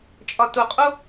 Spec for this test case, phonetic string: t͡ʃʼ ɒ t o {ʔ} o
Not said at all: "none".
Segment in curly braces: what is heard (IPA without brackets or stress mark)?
qʼ